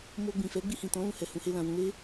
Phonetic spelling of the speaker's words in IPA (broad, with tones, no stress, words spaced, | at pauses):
mo˧ɡ͡bĩ˨fɛ˨˦ ɡ͡bi˧hĩ˨tɔ̃˨˦ lũ˧hɛ˨ hũ˧he˧ lã˨wũ˧le˦